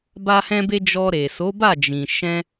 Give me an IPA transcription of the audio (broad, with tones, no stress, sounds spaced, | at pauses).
b a˦ h ɛ̃˦ b e˦ d͡ʒ ɔ˧ ɾ e˨ s o˨˦ b a˦˨ d͡ʒ ĩ˨ ʃ ɛ̃˧